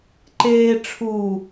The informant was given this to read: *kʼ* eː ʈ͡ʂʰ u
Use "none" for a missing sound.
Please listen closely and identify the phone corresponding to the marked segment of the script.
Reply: ǃ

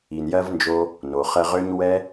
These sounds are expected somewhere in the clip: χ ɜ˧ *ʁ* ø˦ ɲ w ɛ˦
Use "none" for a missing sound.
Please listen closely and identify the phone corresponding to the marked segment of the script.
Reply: ʁ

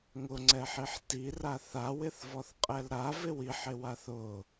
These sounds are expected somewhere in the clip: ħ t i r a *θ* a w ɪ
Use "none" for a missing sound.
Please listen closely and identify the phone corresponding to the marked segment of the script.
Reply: θ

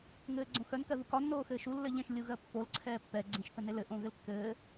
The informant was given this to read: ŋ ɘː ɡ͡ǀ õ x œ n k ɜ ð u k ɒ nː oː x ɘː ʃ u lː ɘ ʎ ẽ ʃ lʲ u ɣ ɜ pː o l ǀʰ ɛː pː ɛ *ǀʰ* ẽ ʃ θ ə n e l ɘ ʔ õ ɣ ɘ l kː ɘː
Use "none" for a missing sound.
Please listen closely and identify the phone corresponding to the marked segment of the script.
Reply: ɡ͡ǀ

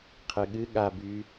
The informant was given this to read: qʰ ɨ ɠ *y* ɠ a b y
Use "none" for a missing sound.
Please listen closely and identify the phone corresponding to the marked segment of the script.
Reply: ɨ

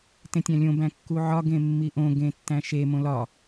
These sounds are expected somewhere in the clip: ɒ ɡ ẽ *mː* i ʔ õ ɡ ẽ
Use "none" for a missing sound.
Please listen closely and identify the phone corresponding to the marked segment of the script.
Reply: mː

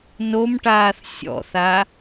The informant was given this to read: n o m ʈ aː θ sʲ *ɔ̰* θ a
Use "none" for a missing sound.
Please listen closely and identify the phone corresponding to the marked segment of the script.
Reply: ɔ̰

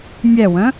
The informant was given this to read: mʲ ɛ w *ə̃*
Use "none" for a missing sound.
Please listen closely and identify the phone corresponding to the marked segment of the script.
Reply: ə̃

